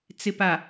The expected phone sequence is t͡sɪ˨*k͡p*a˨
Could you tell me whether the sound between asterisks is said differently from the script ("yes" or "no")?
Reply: yes